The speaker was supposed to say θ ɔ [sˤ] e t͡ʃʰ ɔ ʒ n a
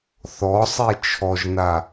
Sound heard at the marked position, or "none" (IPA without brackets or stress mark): sˤ